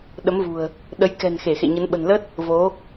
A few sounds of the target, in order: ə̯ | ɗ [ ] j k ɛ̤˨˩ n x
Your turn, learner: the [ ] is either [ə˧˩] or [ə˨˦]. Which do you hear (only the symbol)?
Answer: ə˨˦